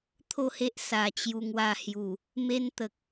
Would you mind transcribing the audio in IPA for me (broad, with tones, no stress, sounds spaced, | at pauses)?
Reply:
t̪ʰ o˥˧ h e˦ ʔ s a˨˩ t͡ɕ j u˧ ŋ w a˧ h j u˨˩ | m e˦ n t̪ ə˨ k̚